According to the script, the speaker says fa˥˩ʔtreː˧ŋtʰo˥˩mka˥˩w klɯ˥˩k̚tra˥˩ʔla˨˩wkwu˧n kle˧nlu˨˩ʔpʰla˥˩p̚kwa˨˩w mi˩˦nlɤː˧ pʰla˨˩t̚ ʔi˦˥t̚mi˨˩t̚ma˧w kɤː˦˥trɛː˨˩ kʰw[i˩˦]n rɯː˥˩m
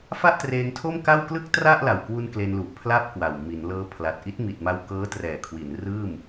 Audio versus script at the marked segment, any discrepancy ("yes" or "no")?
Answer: no